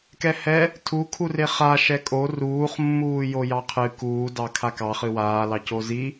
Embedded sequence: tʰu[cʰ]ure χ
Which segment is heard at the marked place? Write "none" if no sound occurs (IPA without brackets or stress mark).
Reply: kʰ